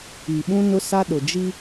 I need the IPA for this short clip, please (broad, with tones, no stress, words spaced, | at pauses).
i˨ɓũ˦nʊ˦sa˦ ɗʊ˨d͡ʒi˦